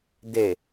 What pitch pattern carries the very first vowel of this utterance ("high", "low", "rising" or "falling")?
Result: low